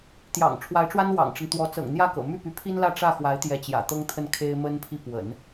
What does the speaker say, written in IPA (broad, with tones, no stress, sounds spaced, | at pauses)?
t̪ j ɑ̰˨˩ ŋ ʈ͡ʂʰ w a˧˥ ɪ̯ ʈ͡ʂ w a˥ n w ɑ̰˨˩ ŋ ʈ͡ʂ ə˦ n t̪ w ɔ˧˥ t͡s ɤ̰˨˩ ŋ n̪ j ä˥˩ k ɤ̰˨˩ m y˥˩ p y˧˥ pʰ i˥ n l ä˥˧ ʈ͡ʂ ä˥˩ x w a˧˥ ɪ̯ t̪ j ɛ˧˥ t͡ɕ j ä̰˨˩ t̪ ɤ˥ ŋ t̪ʰ ə˥˩ n kʰ e˥ ɪ̯ m ə˥ n pʰ i˥˩ p w ə̰˨˩˦ n